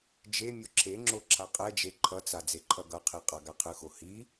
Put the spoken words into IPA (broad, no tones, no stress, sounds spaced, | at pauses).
d͡ʒ e mʲ o ǁʰ e ŋ͡ǁ o ǁʰ a qʼ ɛ d͡ʒ e ǃʰ ʌ t͡s a d͡z e ǃʰ ʌ ɡ ʌ qʰ i qʼ a ɡ a qʰ ɯ x o h i